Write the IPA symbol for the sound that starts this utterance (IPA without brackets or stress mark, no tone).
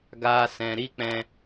ɡ